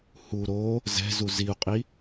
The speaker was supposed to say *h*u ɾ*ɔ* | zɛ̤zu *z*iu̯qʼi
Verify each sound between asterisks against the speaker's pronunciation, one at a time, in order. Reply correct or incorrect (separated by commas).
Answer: correct, incorrect, correct